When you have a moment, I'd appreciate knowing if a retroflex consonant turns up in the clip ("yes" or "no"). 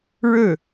yes